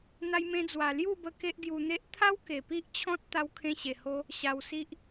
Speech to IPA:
n̪a˧jmẽ˧d͡zwa˨˩ lju˥˧bə˧ ke˦ʔɡju˧n̪e˦ʔ t̪ʰa˦w ke˨˩pi˦ʔt͡ɕʰɔ̃˦t̚ t̪a˧wkʰẽ˧ɕe˨˩ho˧ | ɕa˧wsi˦ʔ

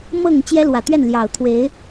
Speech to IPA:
mɤ˥˨ŋ t͡ɕjɛ˦lwä˨˩t̪ɥɛ˥˨nljɑ˨˩ʊ̯ t̪ʰwe˨˦ɪ̯

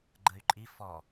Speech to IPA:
ɡ͡ǃəy̯ǃʼi fɔ

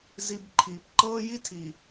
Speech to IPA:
zi˦b ǃʰiː˨p ǃɤː˦ji˦tʰi˨

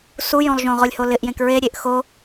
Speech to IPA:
sujõlˠʒõ ʁolʲholɪʔ jẽkɹe ɾʲeʔxo

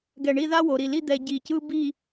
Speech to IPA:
ɡɛ˧˩ɳi˥˧ða˥ wo˩˧ɾi˧˩li˥˧ d̪ɛ˧ɟi˧˩cɯ˥ bi˥˧

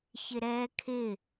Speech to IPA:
çɪɾɛːkʰɪ

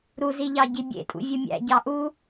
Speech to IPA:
ɾuziʎɑ ɟibʲḛtʼṵ vʲumʲæ̰ɟɑ ʔu

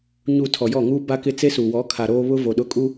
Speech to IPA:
ɲu˨ tʰɔ˨jɔ˦˨ŋuː˦ ba˦kɪ˦ t͡se˦su˨wɔ˨˦ kʰa˨ɾoː˦βʊ˦ vo˨ɗʊ˦˨ kʼu˦

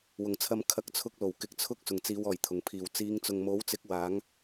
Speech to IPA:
wʊ˨˩ŋt͡sʰɐ˧m kʰɐ˨˥k̚t͡sʰʊ˧k̚ lo˨˩wkɪ˨˥k̚t͡sʰʊ˥k̚ sʊ˨˩ŋ t͡siː˨˧wɔː˨˩jt̪ʰʊ˨˩ŋpʰiː˨˩w t͡siː˨˧ŋt͡sʊ˨ŋmo˨˥wt͡sɪ˨˥k̚ waː˨˥ŋ

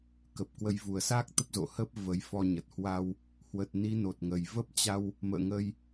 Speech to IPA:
kə˨˩p̚kwə˨˦j vu˨˩ə̯sa˦˥k̚ t̪ə˦˥p̚zo̰˧˨hə˦˥p̚ və˨˦jfɔ˧ɲə˨˩t̚ hwa˧w | hwə˨˩t̚ni˨˦no˨˩t̚ŋə˨˩j və˦˥p̚t͡ɕa˧w | mə̰ː˧˨ŋə˧j

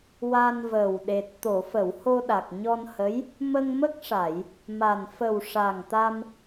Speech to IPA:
wa˧nvəː˨˩w ɗe˨˩t̚ t̪o˨˩˨fə˨˩˨w ho˧ɗa˨˩k̚ ɲɔ˧nhə˧˥j | mə˧ŋmə˦˥k̚ʂa˨˩˨j | ma˨˩n fə˨˩w ʂa˨˩ŋt̪a˧m

